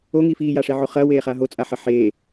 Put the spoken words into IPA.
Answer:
o ŋ iː f iː j a ʂ e ʕ o χ ɐ w eː χ a ɦ o t͡sʼ a ħ ɐ ħ eː

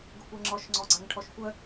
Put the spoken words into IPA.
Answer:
ɡ ʊ kʷ ɛ ŋ͡ǁ ɔ ʃ ŋ͡ǀ ɔ ɡ͡ǀ a ŋ ʈʰ ɔ ʃ kʷ œ

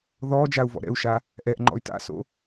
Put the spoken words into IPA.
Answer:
ð ɔ d͡ʒ a u̯ v ɔ̰ ɾ ɛ̰ u̯ ʃ a | ʔ ɛ ʔ ŋ͡ǃ ɔ̰ y̯ t a̰ s o̰

